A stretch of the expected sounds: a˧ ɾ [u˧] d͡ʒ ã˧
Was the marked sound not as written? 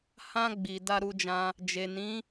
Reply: no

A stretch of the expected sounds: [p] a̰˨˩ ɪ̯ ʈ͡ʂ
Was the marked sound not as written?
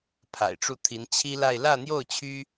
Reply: yes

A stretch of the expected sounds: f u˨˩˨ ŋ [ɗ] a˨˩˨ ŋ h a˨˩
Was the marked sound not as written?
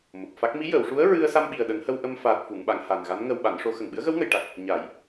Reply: yes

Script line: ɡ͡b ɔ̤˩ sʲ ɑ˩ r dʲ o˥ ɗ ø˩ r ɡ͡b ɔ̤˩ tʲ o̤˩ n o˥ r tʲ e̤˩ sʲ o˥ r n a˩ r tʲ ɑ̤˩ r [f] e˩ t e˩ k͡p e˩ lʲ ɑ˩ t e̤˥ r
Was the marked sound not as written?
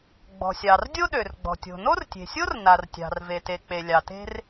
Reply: yes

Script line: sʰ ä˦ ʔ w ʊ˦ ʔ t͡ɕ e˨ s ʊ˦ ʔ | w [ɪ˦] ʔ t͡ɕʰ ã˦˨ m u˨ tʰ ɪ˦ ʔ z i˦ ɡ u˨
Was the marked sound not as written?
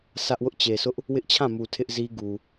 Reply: no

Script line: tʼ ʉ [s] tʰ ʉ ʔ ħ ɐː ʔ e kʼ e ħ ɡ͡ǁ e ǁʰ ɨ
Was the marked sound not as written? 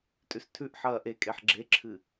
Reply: no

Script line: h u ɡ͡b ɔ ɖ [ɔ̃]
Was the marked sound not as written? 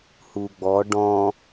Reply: no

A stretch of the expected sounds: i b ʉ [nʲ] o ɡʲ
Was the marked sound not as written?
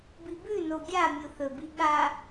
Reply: yes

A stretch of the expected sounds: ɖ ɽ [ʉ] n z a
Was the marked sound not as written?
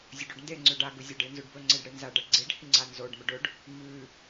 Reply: yes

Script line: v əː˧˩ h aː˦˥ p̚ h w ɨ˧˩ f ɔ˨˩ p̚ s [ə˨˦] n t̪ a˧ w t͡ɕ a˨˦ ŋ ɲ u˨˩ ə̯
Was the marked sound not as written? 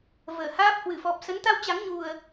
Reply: no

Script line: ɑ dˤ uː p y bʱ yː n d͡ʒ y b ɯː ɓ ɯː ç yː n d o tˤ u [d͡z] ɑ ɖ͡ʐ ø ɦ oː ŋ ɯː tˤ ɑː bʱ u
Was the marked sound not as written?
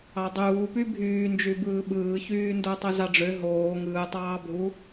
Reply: yes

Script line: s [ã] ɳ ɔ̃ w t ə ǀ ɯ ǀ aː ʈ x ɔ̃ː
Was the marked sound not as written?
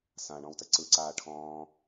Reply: no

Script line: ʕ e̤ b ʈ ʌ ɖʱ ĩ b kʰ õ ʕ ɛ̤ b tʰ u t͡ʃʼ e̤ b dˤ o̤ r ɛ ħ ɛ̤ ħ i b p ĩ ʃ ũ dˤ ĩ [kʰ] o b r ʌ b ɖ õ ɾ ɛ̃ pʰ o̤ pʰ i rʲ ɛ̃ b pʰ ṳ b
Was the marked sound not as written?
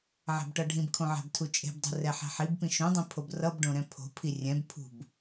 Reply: yes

